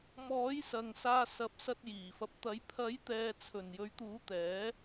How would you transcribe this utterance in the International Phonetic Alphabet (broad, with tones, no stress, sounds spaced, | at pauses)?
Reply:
m ɔː˨˥ j s ɐ˨ ŋ s aː˧ s ɐ˨˥ p̚ s ɐ˧ t̚ j iː˨˩ f ɐ˨ p̚ t̪ ɐ˨˥ j pʰ ɐ˨˥ j t̪ ɛː˨ t͡sʰ ɵ˨˩ n j ɵ˨˥ ɥ t̪ uː˨˥ t̪ ɛː˨˥